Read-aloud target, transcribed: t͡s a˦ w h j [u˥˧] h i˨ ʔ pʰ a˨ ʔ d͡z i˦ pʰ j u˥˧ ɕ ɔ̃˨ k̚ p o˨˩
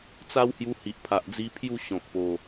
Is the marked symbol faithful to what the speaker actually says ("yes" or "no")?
no